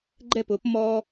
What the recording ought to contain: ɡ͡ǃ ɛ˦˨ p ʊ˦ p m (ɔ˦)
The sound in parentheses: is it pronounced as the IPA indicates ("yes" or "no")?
yes